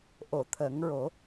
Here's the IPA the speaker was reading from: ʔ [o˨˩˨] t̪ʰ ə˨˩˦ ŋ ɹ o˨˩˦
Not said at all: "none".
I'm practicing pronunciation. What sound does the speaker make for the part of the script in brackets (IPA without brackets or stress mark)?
o˨˩˨